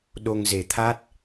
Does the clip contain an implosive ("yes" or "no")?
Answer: yes